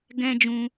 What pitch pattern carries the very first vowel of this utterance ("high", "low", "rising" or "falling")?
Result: high